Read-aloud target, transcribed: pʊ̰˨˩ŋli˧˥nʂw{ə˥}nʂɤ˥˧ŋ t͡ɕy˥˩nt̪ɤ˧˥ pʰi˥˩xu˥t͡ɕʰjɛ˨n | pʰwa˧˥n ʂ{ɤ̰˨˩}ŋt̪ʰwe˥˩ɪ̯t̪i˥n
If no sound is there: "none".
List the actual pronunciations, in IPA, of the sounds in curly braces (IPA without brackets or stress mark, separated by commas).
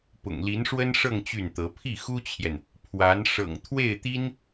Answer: ə˥, ɤ̰˨˩